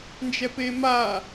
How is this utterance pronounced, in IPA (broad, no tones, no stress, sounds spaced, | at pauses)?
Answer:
n d͡ʒ ɛ p e m a